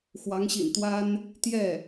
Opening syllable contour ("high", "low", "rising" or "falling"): rising